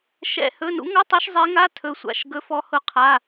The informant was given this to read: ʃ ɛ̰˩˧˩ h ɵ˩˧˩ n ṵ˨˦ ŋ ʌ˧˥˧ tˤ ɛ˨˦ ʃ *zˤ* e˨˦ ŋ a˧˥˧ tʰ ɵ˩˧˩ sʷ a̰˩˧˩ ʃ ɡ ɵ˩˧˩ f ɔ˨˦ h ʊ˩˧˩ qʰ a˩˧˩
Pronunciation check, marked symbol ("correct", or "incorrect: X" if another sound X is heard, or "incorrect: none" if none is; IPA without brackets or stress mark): correct